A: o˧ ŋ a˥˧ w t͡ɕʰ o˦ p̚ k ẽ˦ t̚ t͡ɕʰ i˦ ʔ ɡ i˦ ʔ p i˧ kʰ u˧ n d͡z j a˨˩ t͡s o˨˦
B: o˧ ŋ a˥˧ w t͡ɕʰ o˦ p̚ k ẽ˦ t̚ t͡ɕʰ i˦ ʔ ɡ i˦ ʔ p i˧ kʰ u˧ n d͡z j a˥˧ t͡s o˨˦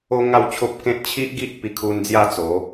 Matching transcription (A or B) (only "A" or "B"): B